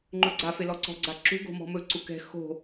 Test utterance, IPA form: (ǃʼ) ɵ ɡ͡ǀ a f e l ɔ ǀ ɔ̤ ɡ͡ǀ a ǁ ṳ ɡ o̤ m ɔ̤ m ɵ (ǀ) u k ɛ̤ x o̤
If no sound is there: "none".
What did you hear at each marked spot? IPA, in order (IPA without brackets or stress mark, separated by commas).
ŋ͡ǃ, ǀ